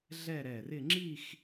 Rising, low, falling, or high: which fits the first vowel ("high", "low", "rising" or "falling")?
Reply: falling